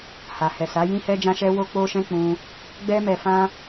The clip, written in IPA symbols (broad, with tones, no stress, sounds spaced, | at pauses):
h a˨ h ɛ˨ s a˨˦ j ĩ˦ h ɛ˦ d͡ʒ ã˦ ʃ ɛ˦ w o˦ k͡p o˦ ʃ ɛ̃˦ k͡p ũ˦ | ɡ͡b ɛ˦ m ɛ˧ f ã˦